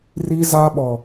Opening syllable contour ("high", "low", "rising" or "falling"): high